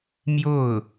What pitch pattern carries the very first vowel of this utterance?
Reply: falling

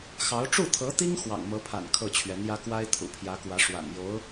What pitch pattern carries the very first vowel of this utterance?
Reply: rising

